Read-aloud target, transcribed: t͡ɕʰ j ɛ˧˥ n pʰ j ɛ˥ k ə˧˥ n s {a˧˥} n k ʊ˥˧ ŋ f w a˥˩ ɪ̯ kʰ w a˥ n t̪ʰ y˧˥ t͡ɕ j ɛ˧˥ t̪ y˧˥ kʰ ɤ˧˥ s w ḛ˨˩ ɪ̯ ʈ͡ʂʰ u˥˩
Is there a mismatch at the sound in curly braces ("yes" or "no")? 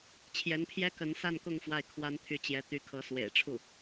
yes